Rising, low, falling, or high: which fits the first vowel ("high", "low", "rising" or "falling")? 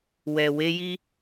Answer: low